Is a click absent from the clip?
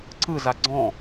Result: no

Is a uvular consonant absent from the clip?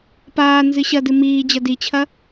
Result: yes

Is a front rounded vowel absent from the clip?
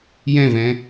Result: yes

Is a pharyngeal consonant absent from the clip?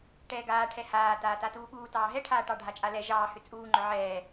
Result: no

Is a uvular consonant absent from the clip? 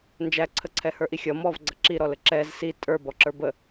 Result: yes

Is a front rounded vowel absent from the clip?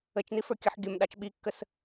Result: yes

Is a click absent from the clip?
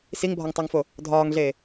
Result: yes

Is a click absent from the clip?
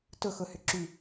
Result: no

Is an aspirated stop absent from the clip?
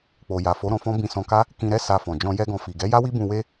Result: yes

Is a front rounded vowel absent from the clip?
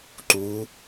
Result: yes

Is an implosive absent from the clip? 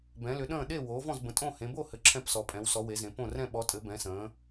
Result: no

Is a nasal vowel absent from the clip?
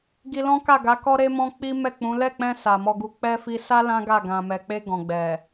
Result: no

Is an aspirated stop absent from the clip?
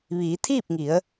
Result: no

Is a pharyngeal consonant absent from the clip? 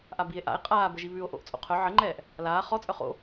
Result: no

